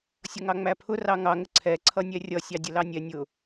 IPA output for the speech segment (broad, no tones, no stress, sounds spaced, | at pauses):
sʲ ʌ ŋ ɑ ŋ͡m æ pʰ ʊ r ɑ ŋ ɑ ŋ ə ǀʰ ɛ ǀʰ ʌ nʲ ɛ rʲ ʌ sʲ ɑ dʲ ə l ɑ nʲ ɛ nʲ ʊ